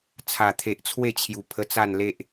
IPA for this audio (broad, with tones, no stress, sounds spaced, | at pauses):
t͡sʰ a˨˩ t̪ʰ e˨ ʔ t͡sʰ w e˥˧ t͡ɕʰ j u˨˩ pʰ ə˧ t͡s a˥˧ n l e˦ ʔ